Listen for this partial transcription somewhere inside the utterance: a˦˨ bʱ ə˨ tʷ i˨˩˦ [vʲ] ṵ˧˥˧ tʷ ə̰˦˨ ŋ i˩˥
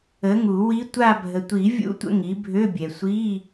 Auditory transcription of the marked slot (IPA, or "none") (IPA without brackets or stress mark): vʲ